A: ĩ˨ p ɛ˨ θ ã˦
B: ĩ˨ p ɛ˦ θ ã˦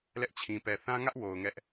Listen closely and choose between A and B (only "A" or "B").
A